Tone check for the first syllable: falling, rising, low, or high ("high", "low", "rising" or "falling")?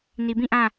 low